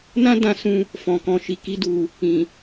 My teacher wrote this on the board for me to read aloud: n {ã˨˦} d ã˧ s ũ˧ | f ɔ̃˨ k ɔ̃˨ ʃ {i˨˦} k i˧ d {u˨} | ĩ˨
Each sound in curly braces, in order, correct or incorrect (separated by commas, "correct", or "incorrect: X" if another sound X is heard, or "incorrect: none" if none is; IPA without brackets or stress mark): incorrect: ã˦, incorrect: i˨, correct